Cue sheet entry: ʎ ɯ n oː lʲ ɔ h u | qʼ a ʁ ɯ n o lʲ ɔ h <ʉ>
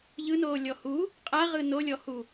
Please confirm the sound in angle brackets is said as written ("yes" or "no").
no